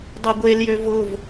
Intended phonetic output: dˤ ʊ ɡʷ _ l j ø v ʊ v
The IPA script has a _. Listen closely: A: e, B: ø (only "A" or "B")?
A